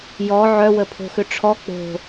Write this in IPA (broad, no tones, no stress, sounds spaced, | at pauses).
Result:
j ɔ ʕ œ w ə pʰ o̤ x ʏ ʈ͡ʂʰ ɔ k͡p o̤